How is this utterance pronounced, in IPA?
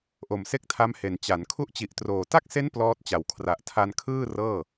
ʔ o˨˩ m s e˥˩ k̚ tʰ a˦˥ m h e˨˩ n t͡ɕ a˩˦ n kʰ u˦˥ ʔ t͡ɕ i˨˩ ʔ t r oː˨˩ t a˥˩ k̚ s e˦˥ n p l ɔː˦˥ t̚ t͡ɕ a˨˩ w kʰ r a˨˩ ʔ tʰ a˧ n kʰ ɯː˥˩ r ɤː˥˩

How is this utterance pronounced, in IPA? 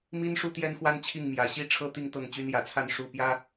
m i˦ n ʂ u˦ t̪ j ɛ˦ n x w a˦ n t͡ɕʰ i˥˨ ŋ m j ä˨˦ ɕ i˦ ʈ͡ʂʰ ɤ˦ t̪ i˥˨ ŋ t̪ ɤ˥˨ ŋ t͡ɕ y˦ n j ä˨˦ t͡sʰ a˥˨ n ʂ u˥˨ p j ä˦

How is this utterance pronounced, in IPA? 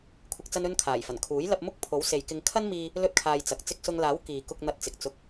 kʷʰ ɪ˨ k̚ t͡s ɐ˧ n ɵ˧ n kʰ aː˨˩ j f ɐ˨˩ n kʰ uː˨˥ j l ɐ˧ p̚ m ʊ˥ k̚ pʰ o˨˥ w s e˨ j k ɪ˧ ŋ kʰ ɐ˥ n m iː˧ | l ɵ˥ t̚ kʰ aː˧ j t͡s ɐ˨˥ k̚ t͡s ɪ˧ k̚ s ʊ˧ ŋ l aː˨˥ w k iː˨ k ʊ˧ k̚ n̪ ɐ˧ t̚ t͡s ɪ˨ k̚ t͡s ʊ˧ k̚

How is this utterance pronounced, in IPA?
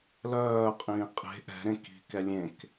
l œː qʼ ĩː qʼ e̤ ʔ ɛ̤ ɾ ẽ k i̤ k ɛ lʲ ẽ k

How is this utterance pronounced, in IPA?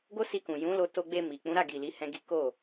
ɡ o˦ s i˧ k ũ˨ j ũ˨˦ l o˧ t o˧ ɡ͡b e˧ m i˨ k͡p ũ˨˦ ɾ a˦˨ ɡ i˨ l i˨˦ h ɛ̃˦ ɡ i˦ k o˦˨

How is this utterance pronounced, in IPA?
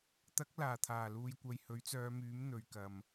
t̪ ɐ˨˥ k̚ l aː˨˩ t̪ʰ aː˨˩ l uː˨ j kʷ ɐ˨ j h ɵ˨˥ ɥ t͡s œː˨˧ m yː˨˥ m n̪ ɵ˨ ɥ k ɐ˨ m

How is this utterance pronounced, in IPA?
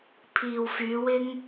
pʰ iː˨ w f yː˨˧ w ɪ˥ ŋ

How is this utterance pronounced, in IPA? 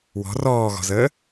w ɔ̤ r ɔː ɣ ɔ̤ z əː

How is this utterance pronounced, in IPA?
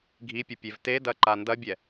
ɡʱ i pʲ ə pʲ e v t e d ɐ ǃ a n d ɐ bʲ ɛ

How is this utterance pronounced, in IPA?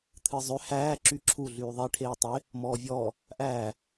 t̪ʰ ɨː zˤ ø h æː ǁ y ǁʰ u ɮ yː ðˤ e ʈʰ eː tˤ e | m ɔː vʲ ɔː | ʔ æː

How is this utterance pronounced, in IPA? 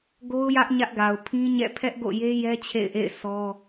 ɡ o˦ ʊ̯ j ä˦ ʔ ɲ ä˦ ʔ ɡ a˨ ʊ̯ pʰ ĩ˦ ɲ ɛ̰˦˨ pʰ ɛ˦ ʔ ɡ o̰˦˨ j e˦ j ɛ˦ t͡ɕʰ ḛ˦˨ ɪ̯ ʔ ḛ˦˨ ɪ̯ sʰ ɔ˦

